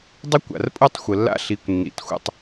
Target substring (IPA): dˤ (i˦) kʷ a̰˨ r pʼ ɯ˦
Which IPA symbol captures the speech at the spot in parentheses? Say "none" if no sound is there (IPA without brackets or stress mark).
i˦